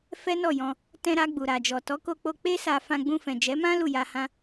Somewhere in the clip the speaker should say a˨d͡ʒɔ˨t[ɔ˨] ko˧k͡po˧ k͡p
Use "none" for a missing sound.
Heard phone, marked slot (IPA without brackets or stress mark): ɔ˨˦